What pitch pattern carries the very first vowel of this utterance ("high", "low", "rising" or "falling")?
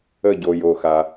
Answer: falling